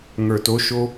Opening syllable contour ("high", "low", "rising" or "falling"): low